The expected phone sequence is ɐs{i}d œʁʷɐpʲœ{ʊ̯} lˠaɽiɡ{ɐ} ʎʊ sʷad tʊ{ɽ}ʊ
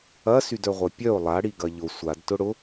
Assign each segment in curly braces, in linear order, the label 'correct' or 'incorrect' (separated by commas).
incorrect, correct, correct, correct